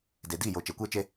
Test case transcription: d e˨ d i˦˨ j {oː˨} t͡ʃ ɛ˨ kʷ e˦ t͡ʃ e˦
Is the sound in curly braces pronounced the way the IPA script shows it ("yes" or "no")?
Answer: no